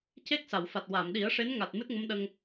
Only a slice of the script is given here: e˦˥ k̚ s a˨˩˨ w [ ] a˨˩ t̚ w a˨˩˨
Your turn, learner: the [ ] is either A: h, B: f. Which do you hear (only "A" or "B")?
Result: B